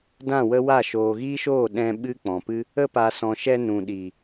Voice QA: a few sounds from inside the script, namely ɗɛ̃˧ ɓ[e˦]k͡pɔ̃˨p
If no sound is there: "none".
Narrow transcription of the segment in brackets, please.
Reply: ɨ˦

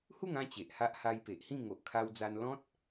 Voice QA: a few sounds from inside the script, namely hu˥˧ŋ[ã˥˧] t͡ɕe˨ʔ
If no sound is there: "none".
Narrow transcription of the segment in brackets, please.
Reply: ã˥˧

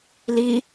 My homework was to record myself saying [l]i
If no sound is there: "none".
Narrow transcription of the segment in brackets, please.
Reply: l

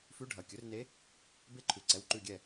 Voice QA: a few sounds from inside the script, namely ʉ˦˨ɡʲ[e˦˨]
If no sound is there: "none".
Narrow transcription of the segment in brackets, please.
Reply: ɛ˦˨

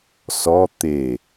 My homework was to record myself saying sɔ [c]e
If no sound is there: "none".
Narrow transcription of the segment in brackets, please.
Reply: t̪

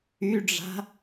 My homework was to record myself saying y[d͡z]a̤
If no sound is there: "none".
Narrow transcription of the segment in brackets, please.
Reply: ɖ͡ʐ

